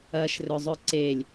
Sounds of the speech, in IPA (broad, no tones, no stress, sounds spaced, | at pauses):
ɐ ʃ r ɵ zˤ ʏ ǀ e lʲ